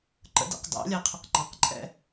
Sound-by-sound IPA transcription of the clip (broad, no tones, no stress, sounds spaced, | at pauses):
ǃ ə̰ d ɛ̰ q d ɑ̰ lʲ æ qʰ ʊ q ŋ͡ǃ ɑ q ǃʼ ɛ̰